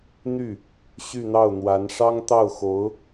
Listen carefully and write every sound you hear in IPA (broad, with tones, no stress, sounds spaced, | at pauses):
n̪ y˥˩ | ɕ y˥˧ n̪ ɑ˥˩ ʊ̯ n̪ w a˧˥ n ʂ ɑ˥ ŋ t̪ ɑ˥˩ ʊ̯ x o˧˥ ʊ̯